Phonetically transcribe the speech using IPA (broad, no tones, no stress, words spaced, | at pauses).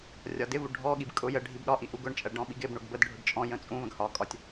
rʲɒdɪvu ɖʱɔɠib kʼʊ jə ɖʱibɗɒʔi ʔuɡʊɳt͡ʃʼɜ ɖɔ̃ɓiɡɪbɳʊɡ bədɖʱʊɖ t͡ʃʼɔ̃jə̃ t͡sʼũ və̃ɡhɒkʼɒtʲ